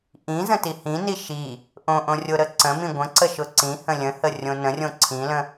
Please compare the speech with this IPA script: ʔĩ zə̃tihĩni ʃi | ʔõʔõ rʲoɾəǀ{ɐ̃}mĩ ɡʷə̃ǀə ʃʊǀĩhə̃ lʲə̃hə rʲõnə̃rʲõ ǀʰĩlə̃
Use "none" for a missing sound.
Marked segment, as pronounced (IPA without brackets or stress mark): ə̃